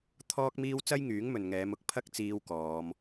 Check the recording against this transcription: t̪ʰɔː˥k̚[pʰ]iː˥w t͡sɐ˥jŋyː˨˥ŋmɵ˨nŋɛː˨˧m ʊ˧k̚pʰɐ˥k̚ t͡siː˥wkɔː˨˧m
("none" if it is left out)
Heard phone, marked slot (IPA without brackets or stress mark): m